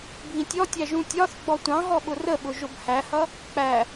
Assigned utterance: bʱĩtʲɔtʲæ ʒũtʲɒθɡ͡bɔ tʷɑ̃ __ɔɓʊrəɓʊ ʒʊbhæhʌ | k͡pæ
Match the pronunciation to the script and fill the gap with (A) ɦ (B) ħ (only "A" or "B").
A